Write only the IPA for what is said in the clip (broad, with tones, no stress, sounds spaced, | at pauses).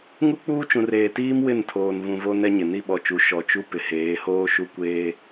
ŋ u˦ k͡p uː˦ t͡ʃ ũ˨ r eː˨ t iː˦ m w ɪ˦˨ n tʰ oː˨ n v ũ˨ v o˦ n ɛ˦ ɲ ɪ˨ n i˦ ɓ ɔ˨ t͡ʃ u˨˦ ʃ ɔ˨ t͡ʃ u˦ p ɪ˨ h eː˨˦ h oː˦ ʃ u˦ kʷ eː˦